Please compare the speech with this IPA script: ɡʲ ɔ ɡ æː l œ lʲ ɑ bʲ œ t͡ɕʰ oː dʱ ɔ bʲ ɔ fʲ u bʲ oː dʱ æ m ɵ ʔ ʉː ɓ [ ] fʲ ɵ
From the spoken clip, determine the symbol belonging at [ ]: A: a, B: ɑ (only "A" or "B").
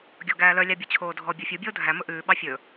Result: B